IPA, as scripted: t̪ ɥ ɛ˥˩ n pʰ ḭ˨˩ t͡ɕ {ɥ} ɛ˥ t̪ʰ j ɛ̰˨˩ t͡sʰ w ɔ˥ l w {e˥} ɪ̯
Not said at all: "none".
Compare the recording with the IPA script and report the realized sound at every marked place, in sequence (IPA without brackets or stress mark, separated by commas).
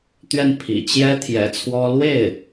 j, e˥˩